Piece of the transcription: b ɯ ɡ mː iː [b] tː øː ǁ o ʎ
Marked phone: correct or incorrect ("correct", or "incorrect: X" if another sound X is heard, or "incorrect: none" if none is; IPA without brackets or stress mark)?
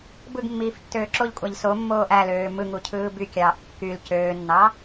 incorrect: f